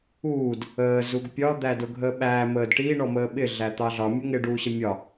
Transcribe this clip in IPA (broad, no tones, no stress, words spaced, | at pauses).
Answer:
uːd | əː zuɡpʲɒ d̪ædʊɡʱəːɓæː məːdʈiː ɳɔməːɓɪ ɮæt̪ɑɮɒ mʲʊŋɪ ɖuːɕəmʲɒ